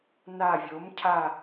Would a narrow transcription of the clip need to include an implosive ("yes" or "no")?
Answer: no